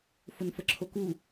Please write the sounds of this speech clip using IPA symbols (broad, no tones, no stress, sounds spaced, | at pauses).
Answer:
f ʊ n f ə ǁʰ o k u